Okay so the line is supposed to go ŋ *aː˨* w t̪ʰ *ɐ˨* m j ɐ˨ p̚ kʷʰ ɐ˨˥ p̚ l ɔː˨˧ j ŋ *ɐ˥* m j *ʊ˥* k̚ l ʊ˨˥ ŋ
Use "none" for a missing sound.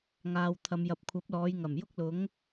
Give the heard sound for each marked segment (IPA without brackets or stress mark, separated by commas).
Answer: aː˨, ɐ˨, ɐ˨˩, ʊ˥